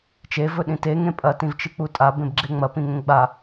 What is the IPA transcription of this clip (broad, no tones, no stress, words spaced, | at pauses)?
t͡ʃe vɵɗĩte ŋẽpʼɐ tĩvt͡ʃɨk͡putʼa bẽbɡ͡ǁeŋ͡mɐ pĩŋẽɡ͡ba